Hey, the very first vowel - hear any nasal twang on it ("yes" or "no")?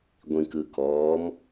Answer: yes